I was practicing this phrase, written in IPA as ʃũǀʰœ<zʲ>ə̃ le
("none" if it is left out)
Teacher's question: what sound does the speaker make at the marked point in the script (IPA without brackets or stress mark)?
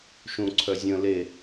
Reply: zʲ